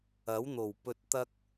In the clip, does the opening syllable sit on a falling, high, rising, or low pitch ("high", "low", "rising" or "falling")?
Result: rising